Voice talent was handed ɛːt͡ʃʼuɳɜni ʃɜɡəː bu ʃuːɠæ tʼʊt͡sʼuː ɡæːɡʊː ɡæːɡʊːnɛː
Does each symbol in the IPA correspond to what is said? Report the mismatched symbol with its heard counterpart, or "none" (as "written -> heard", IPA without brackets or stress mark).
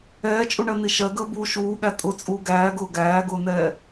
none